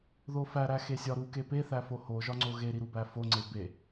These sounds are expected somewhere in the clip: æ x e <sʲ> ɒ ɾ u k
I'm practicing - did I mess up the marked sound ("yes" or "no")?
no